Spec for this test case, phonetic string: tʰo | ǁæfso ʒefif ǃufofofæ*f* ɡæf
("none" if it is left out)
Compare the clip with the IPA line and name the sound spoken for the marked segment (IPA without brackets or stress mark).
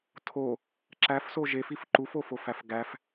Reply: f